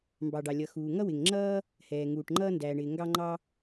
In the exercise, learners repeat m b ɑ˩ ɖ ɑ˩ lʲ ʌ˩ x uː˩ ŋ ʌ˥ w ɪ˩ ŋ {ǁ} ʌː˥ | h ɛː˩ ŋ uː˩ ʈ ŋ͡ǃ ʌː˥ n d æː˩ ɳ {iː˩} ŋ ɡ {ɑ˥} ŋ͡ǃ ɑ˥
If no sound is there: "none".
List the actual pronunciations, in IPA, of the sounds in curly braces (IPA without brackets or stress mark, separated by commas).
ŋ͡ǁ, ɪː˩, ɑ˥